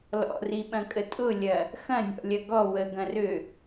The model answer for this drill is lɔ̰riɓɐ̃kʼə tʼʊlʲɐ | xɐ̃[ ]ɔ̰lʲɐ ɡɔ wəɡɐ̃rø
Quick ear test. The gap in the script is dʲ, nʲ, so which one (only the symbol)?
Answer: nʲ